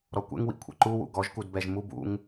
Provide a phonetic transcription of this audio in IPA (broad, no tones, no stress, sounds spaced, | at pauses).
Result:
ɾ ɔ kʷ ɛ̰ ŋ w ḭ kʷʰ ɛ̰ ǃ u w ṵ ɡ ɔ ʒ k u d b ɛ ʒ m u b ṵ ŋ